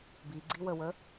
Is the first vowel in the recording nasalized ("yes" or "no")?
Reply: no